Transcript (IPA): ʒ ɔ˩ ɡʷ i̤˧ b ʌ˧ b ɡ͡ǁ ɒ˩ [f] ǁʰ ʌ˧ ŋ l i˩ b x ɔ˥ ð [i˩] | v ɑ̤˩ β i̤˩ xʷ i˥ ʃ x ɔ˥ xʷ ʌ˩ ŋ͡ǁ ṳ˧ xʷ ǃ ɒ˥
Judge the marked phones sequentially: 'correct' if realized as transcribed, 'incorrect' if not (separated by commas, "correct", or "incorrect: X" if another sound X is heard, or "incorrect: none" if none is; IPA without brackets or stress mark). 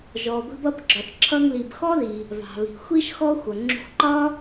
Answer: incorrect: θ, correct